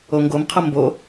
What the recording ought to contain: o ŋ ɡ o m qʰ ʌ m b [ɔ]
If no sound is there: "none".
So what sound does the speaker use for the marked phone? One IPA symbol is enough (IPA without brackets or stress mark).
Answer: o